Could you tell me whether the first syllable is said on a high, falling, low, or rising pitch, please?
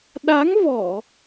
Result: rising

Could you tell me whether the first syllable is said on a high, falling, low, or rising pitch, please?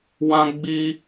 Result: high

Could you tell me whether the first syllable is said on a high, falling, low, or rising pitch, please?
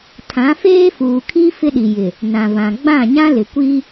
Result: rising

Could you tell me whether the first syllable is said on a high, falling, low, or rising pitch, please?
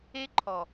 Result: high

